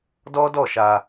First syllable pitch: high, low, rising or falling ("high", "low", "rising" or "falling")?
high